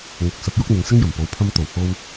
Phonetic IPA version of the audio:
ŋ ʊ˨ k̚ s ɐ˨˥ p̚ j ʊ˥ k̚ n̪ ɪ˨˧ ŋ s ɪ˥ ŋ j ɐ˨˩ m p o˨˧ w pʰ ɐ˧ m t̪ o˨˩ w h o˥ w

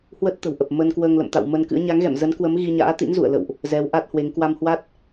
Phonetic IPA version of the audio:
h w ə˦˥ t̚ t̪ ə̤˨˩ w ʔ ə˨˩ p̚ m ə˧ n k w əː˧ ŋ l ə̰˧˨ m t̪ a̰˧˨ w m ə˧ n k ɨ̰˧˥ ə̯ ɲ a˨˦ ŋ ɣ ɛ̰˧˨ m z ə˨˦ n k w ə˨˦ m ɣ i˧ ɲ a̰ː˧˥ t̪ ḭ˧˥ n z ṵ˧˨ ə̯ l ə̰˧˨ w ʔ | z ɛ˨˦ w ʔ a˦˥ t̚ h w e˨˦ ŋ k w a˧ m h w a˦˥ t̚

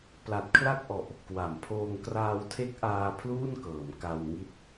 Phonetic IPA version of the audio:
p l a˨˩ t̚ kʰ l a˥˩ k̚ ʔ ɔ˨˩ ʔ | k w a˩˦ m pʰ oː˧ ŋ k r aː˧ w tʰ e˦˥ k̚ ʔ aː˧ pʰ l uː˥˩ n k ɤː˩˦ m k a˧ w ŋ i˦˥ t̚

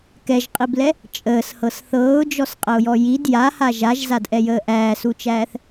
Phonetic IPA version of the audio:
k ɛ ʒ qʼ i b l ɛ | t͡ʃʼ əː s h ɤ s θ ɤː ʊ̯ d͡ʒ ɔ s qʼ ə ʊ̯ j ɔ j i d j a h a ʒ a ʒ z a d ʔ ɛ j əː ʔ æː s u t͡ʃ æː θ

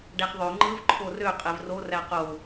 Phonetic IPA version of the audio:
ɖ æ χ ðˤ ø ŋ͡ǃ ɯ v ǃʰ o r ø qʼ e v r o r æ q o

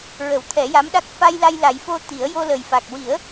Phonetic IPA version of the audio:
ɹ ə˨˩˦ w t̪ʰ ɛ˨˩˦ j a˧˥ m ɗ a˦˥ k̚ f a˧ j l a˧ j l a˨˩˦ j f o˧ t̪ i˨˩˦ ə̯ j o˧ l ə˨˩ j f a˨˩ k̚ w i˨˩˦ ə̯

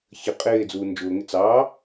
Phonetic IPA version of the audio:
ç ə qʼ ɪː d͡z uː n d͡ʒ ʊː ŋ ɪ t͡s ɑː

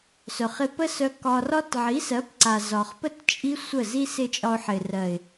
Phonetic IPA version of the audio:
s œ˨ χ ɪ˧ p ə˦ s œ˧ k ɒ˧ r ɒ˦ t ʕ i˨˦ s ɜ˨˦ p ǀ a˨ z ɒ˨ χ p ə˦ t t͡ʃʼ i˦ sʷ ə˦˨ z i˦ s ɪ˦˨ t͡ʃʼ ɒ˧ ʊ̯ ħ ɪ˨ r ɜ˨ ɪ̯

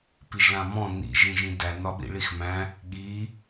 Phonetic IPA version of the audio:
p i ʒ l ã m ɔ̃ n ḭ ʒ ĩ ʒ ĩ d æ n ɒ ɓ ḭ ɭ i x m æ̃ | ɠ i

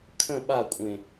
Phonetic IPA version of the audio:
kʰ ə̃ ɓ a kʷʼ ẽ

